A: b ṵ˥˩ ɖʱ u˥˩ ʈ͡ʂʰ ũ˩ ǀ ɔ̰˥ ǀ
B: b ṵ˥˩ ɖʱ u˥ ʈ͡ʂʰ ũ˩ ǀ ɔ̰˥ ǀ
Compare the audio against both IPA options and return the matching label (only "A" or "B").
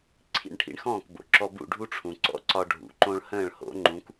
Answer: B